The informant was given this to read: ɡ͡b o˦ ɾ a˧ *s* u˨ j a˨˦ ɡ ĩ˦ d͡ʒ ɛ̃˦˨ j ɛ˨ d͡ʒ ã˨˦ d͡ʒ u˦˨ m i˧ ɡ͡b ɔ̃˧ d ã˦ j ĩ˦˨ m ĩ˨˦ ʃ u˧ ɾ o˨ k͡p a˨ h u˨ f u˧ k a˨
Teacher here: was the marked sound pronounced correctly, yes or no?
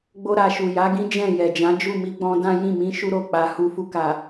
no